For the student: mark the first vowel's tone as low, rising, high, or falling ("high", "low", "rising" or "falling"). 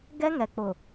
high